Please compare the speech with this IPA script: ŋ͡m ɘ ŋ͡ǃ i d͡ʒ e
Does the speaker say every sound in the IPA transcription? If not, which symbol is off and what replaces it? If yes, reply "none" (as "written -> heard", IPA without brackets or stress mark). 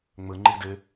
d͡ʒ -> d